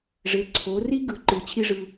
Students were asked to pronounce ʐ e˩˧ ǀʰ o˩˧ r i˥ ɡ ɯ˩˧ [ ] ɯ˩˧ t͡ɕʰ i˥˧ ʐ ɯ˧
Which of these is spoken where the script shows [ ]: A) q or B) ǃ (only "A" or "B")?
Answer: B